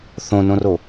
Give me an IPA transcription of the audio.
θ õ n õ r o

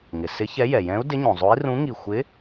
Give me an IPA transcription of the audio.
ŋ ɪ˩ s ɪ˧˥ ç ɛ˧˥ j ɛ˩ j ɛ̃˧˥ u̯ d ɪ˧˥ ɲ õ˩ zˤ o˧˥ i̯ r ũ˧˥ ŋ i˧˩ xʷ ɪ˧˥

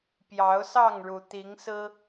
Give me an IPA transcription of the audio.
p j ɑ˨˦ ʊ̯ s ɑ˥˨ ŋ ɻ u˩ t̪ i˨˦ ŋ s ɹ̩˦

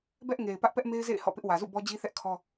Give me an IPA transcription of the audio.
b ɛ˦ ʔ ŋ e˨ ɪ̯ p ä˦ ʔ p ɛ˦ ʔ m e˦ ɪ̯ z ḛ˦˨ ɪ̯ h ɔ̰˦˨ p ɪ˦ ʔ w ä˨ z ṵ˦˨ b ɔ˦ d͡ʑ i˦ θ ɛ˦ ʔ kʰ ɔ˦

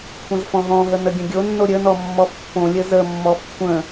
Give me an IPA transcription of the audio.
kʷʰ ə̃ z f ɔ̃ ɦ ɔ̃ ɦ ə n ə ɡʲ ə̃ ɡʲ o nː o ɾʲ ə n ɔ mː ɔ f pː õ lʲ ə z ə mː ɔ f kʷʰ ə̃

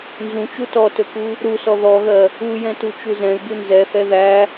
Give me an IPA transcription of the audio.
n z ũ t͡ʃ u t ɔ t ɵ k u | ɾ u s ɔ ð ɔ ɣ ɜ | u j ɛ̃ t u t͡ʃ u z ɛ̃ y̯ b u n z ɛ θ ɛ ð æ

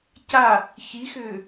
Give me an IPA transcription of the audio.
c a | ç i x ʏː

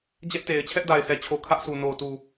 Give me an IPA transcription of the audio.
d͡ʑ ɛ˦ ʔ t e˨ ɪ̯ t͡ɕʰ ɛ˦ ʔ d a˨ ɪ̯ sʰ ɛ˨ t͡ɕʰ o˨ kʰ ä˦ ʔ s u˨ n o˨ t u˨

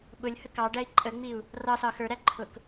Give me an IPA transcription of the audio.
ɓ ʊ lʲ h ə k ɑ ɖ æ i̯ ǃʼ ə ŋ͡m i u̯ | r ɑ s ɑ x ə˞ ɾ æ ǃʰ ʊ k

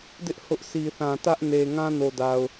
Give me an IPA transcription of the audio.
d ɪ˦ ʔ h ʊ˦ ʔ s i˨ θ ã˨ t ä˦ ʔ n e˨ ŋ ã˦ n o˨ d a˨ ʊ̯

